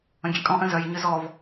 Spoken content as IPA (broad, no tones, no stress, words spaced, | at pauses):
ə̃ɡʲɛkʼɔ̃ ʔə̃zœj ɲʏzɔv